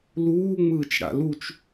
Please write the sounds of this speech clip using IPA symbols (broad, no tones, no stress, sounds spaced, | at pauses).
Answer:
l uː ŋ͡m ɯː t͡ʃ ɽ a̰ l u t͡ʃ